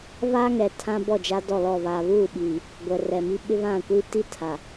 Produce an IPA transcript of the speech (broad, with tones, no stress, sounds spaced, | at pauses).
β aː˦ ŋ ɛ˨ tʰ ã˦ b ɔ˦˨ d͡ʒ a˦ d ɔ˦˨ l ɔ˦˨ β aː˨ β uː˦˨ ɓ iː˨ | ɡʷ ɛ˨ r ɛ˨ m i˦ ɓ ɪ˦ β ã˦˨ kʷ i˦ t i˦ tʰ a˨